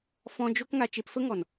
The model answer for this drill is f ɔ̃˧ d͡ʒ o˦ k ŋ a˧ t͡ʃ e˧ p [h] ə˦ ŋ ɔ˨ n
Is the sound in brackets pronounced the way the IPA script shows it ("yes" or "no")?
no